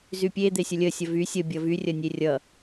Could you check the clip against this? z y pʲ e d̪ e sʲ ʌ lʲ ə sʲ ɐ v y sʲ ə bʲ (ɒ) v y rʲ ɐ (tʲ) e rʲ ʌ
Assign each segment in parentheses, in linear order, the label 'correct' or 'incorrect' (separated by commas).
incorrect, incorrect